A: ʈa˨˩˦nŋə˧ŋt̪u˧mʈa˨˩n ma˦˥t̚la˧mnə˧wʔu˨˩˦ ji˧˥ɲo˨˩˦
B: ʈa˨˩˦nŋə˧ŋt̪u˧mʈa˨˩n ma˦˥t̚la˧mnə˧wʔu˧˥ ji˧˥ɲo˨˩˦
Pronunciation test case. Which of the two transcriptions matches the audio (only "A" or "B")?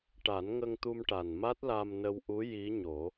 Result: B